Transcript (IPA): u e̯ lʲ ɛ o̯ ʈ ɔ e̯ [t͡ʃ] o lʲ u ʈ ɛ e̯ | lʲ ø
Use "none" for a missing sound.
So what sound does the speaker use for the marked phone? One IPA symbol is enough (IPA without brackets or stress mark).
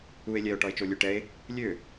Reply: t͡ʃ